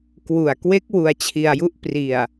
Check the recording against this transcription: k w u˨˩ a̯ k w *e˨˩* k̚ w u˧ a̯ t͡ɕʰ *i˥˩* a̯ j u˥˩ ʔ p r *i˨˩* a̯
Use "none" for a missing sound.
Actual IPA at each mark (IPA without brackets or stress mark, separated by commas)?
e˦˥, i˧, i˨˩